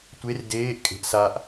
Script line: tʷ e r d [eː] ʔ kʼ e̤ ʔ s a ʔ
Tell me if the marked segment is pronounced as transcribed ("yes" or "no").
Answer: yes